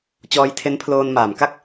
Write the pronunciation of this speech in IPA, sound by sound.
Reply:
t͡ɕ ɔː˦˥ j tʰ e˦˥ n pʰ l oː˧ n m aː˨˩ m k a˥˩ k̚

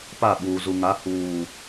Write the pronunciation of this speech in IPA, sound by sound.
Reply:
p a˦˨ ɓ uː˨ z u˨ ŋ a˨˦ h uː˨

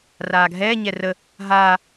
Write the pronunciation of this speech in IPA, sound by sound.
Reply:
r aː ɡʱ ɛː ɲ ɛ r ə | ɦ aː

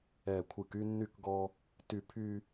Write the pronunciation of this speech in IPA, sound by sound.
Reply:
ɛ˨˩ kʷʰ ɨ˨˩ k y˧ nː y˧ k ɡ ɔ˧ | t y˨˩ pʰ y˧

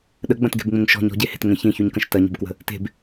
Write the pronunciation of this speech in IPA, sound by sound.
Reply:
ɗ ə ɡ͡b ɐ̃ t ɡ e̤ b ŋ͡m ə̃ ŋ ʃ ɔ̤ ɲ ɔ̤ ɟ e h e̤ t ŋ ə̃ ç ẽ ç u ɲ k ɐ̃ ʃ t ɐ ɲ ə̤ b k w ə̤ | t e̤ b

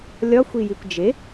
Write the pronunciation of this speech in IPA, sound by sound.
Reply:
lʲ ɒ xʷ i j i kʷ d͡ʒ e

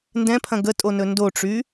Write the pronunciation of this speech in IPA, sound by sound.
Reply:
n d ɛ̃ pʰ ɐ̃ ɡ ə tʼ o n ɵ n d o ʈ͡ʂ y

